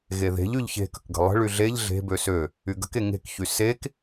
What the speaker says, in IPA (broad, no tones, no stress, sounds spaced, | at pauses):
ɣ e ð e̤ ʎ y ʎ ç e̤ k ə̤ k ɡ ə̤ lˠ ə̤ ɭ y ɮ e ʎ ɮ e̤ b ø s ø | y ɡ ə̤ k e ŋ e̤ k ç y s e k